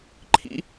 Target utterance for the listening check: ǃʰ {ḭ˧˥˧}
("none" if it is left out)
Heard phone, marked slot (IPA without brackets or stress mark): ḭ˧˥˧